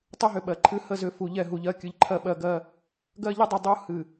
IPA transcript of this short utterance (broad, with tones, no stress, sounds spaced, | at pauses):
tˤ ɨ˦ ɦ ʏ˨ ɓ ɜ˨ ǃʰ ɨ˦ h ə˦˨ z ʏ˦ f u˨ ʎ ɛ˦˨ ɦ u˨ ʎ ɜ˦ kʲ ɨ˨˦ ʎ ǃʰ ɜ˦ ɓ ɜ˦ ɡ ɜ˦ | ɡ ɜ˦ ʎ ə˦ dˤ u˨ dˤ u˦ h ɨ˨